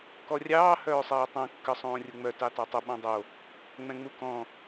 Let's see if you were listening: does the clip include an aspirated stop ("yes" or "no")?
no